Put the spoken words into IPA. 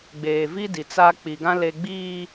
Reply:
ɡ͡b eː˨ v i˦ d i˨ t͡s a˦ k͡p i˨ ɡ ã˦ l e˦ ɡ͡b iː˦

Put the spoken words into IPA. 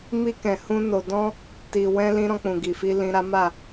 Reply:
m i˧ k ɛ̃˨ h ũ˧ n o˨ d ɔ̃˧ | t i˨ w ɛ̃˧ l ĩ˧ ɾ ɔ̃˧ k͡p ũ˨ ɡ i˨ f i˧ l ĩ˧ ɾ a˦ m a˦˨

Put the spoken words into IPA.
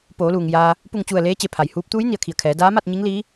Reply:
p oː˩˧ l uː˩ ŋ j aː˧ | p u˧˩ ŋ t͡ɕ u˧˩ ə̯ l eː˧˥ t͡ɕ e˩˧ pʰ a˩ j h uː˧˥ p̚ t̪ uː˧˥ j n i˩˧ ə̯ kʰ i˩ ə̯ kʰ ɛː˩˧ d aː˧˥ m a˥˨ t̚ ɲ i˧˥ ŋ l iː˧˥

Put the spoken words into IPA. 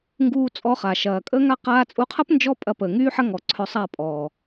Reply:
ŋ ɡ uː˧ t͡sʼ ɔ˧ χ a˨ ʃ ɐː˨ kʼ əː˦ ŋ a˦ q aː˧ t͡sʼ u˧ qʰ ɐ˦ p n d͡ʒ ɔ˦ pʼ ɐ˧ p əː˨ ŋ yː˦ ħ ɐ˦ ŋ ɔ˨ ǀʰ œ˧ sˤ a˦˨ pʼ ɔː˨

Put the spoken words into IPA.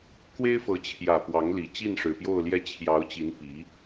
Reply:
k w e˥ ɪ̯ f ɤ˧˥ t͡ɕʰ j ä˨˩ p w ɑ˧˥ ŋ l i˨˩ t͡ɕ i˥˩ n ʂ ɻ̩˨˩ p j o˥˧ ʊ̯ l j ɛ˥˩ t͡ɕʰ j ɑ˧˥ ʊ̯ t͡ɕ i˧˥ n p i˧˥

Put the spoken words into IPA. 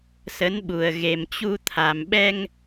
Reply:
s ə˨˦ n ɓ u˨˩ ə̯ ɣ e˨˩ m t͡ɕ u˧ t̪ʰ a˨˩ m ɓ ɛ˧ ŋ

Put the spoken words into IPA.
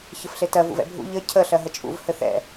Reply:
ç ɘ f ɬ e t ɜ v ṵ v ɛ̰ bʱ ṵ ʎ ɘ cʰ ə ɬ ɜ ɦ ə t͡ʃʼ ṵ v h ɘ θ ɛ̰

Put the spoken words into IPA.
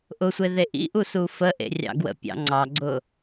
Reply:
ʔ ʊ sʷ e ð e ʔ ḭ ʔ u s u f ə ʔ ḛ rʲ ɑ̰ ɡ w ə̰ pʲ ɑ̰ ŋ͡ǀ ɑ ɡ͡ǀ ʊ

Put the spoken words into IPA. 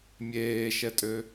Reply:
mʲ eː ʃ ɛ tʼ ø

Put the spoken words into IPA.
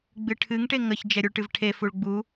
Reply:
ɡ͡b ɨ ʈʰ ɨ ŋ ʈ e ŋ ə ç d͡ʒ ɛ ɾʲ u ɭ ʈ ɨ v ʈʰ e f u ɭ ɡ͡b u

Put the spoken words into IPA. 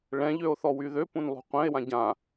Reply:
ɭ ɛ̃ ʎ ø o̯ θ ɔ w y ð ø p ũ n lˠ ṳ qʷ ɛ̃ e̯ w ã ɟ ã

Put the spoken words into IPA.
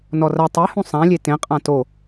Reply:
n ɔ r ɐ tˤ e h ũ sˤ ã lʲ e t ẽ qʼ ã t o

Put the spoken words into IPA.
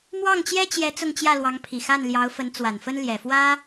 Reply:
m w ɑ˥˩ ŋ t͡ɕ j ɛ˥ t͡ɕ j ɛ˧˥ t͡s ʊ˥˧ ŋ t͡ɕ j ä˥˩ l w ɑ˧˥ ŋ pʰ i˨˩ x a˥˩ n l j ɑ˧˥ ʊ̯ f ə˧˥ n t͡s w a˨˩ n f ə˥ n l j ɛ˨˩ f w ä˥

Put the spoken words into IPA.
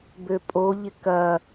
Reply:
b ø pʼ o ʎ ɪ k ɐ

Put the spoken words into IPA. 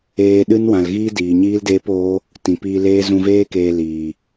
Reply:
eː˧ ɗ ɨ˦ n w ã˨ l ɣ iː˦ d iː˨ ɲ iː˦ l d eː˦ p oː˦ | t ĩ˨ p iː˧ l eː˦ z ũ˧ v eː˦ k eː˧ l iː˨

